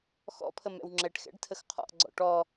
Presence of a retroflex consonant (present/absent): present